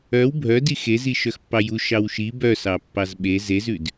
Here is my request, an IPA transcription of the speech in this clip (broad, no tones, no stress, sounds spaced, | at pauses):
œ w bʱ œ d i x e z i ʃ œ x pː ɑ j u ʃ ɑ w ʃ i b œ s ɑ pː ɑ z ɓ e z e z ʉ d